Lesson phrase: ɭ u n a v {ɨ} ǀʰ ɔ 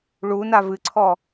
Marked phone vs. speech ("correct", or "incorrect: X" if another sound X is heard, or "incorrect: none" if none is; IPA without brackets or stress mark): correct